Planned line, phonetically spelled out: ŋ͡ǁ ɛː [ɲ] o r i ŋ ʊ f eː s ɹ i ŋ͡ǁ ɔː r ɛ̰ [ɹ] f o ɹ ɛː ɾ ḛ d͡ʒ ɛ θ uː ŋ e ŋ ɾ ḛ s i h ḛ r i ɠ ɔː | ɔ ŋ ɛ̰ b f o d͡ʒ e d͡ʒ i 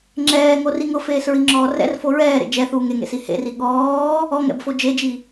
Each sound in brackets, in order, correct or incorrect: incorrect: ŋ, incorrect: r

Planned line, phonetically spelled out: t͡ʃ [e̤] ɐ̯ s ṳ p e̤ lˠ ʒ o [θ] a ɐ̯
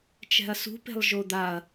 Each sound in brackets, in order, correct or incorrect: incorrect: ɛ̤, incorrect: d̪

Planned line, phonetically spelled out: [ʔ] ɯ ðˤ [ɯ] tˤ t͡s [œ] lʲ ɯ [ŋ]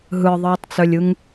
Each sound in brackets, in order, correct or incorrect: incorrect: ɦ, incorrect: ɯː, correct, correct

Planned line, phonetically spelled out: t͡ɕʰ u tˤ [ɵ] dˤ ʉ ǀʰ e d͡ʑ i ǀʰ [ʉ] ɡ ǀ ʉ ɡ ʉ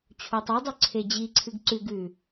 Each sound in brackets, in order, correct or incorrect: correct, incorrect: ɨ

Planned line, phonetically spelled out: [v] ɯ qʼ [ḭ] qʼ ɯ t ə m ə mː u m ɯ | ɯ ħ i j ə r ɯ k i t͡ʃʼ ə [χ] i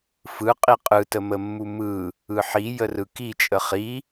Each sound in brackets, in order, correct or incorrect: incorrect: f, incorrect: i, correct

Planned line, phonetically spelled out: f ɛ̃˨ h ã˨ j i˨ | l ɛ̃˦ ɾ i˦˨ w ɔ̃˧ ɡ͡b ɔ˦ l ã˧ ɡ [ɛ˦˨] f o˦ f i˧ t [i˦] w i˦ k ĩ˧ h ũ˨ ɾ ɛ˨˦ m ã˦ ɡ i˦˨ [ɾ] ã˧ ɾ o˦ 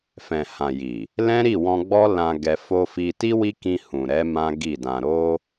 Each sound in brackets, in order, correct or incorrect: incorrect: ɛ˧, correct, incorrect: d

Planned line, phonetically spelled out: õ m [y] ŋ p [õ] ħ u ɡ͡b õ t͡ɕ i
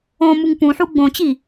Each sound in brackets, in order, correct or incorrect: incorrect: u, incorrect: ũ

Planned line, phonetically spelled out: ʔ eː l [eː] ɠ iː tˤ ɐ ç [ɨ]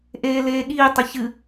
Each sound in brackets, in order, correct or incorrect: correct, correct

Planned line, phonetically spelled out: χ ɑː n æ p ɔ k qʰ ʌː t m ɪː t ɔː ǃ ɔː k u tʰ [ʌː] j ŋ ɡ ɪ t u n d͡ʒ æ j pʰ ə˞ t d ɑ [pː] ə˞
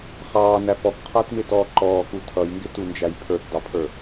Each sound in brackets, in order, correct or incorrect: incorrect: ʌ, incorrect: pʰ

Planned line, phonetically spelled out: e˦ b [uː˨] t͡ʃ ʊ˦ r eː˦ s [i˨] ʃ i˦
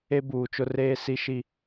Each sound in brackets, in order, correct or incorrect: correct, incorrect: i˦

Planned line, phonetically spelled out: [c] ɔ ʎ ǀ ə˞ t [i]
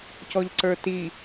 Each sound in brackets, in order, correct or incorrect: correct, correct

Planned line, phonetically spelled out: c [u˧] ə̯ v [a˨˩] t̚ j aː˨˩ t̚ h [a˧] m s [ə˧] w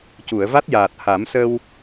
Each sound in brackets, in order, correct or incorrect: incorrect: u˨˩˨, incorrect: a˦˥, incorrect: a˨˩˦, correct

